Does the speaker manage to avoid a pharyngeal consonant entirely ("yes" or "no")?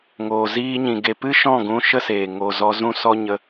yes